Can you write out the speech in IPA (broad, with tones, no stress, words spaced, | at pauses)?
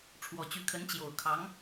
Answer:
ʈ͡ʂʰwɔ˨˩t͡ɕy˧˥kʰə˧˥n t͡ɕjo˨˩ʊ̯kʰɑ˧˥ŋ